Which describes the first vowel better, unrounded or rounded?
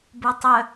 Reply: rounded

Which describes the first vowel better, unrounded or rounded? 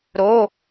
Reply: rounded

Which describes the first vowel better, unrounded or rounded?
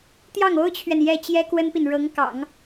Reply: unrounded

